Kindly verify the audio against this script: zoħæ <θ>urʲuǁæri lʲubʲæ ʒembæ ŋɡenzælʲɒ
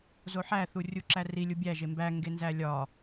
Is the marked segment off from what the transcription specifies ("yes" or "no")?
no